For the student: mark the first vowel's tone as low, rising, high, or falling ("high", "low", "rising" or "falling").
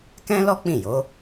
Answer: high